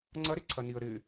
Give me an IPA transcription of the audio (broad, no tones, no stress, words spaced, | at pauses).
ŋ͡ǀɐɾɪǀʰɐniə̯ ɾɪ